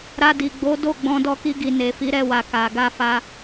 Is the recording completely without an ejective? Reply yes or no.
yes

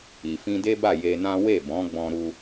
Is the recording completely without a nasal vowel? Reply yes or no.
no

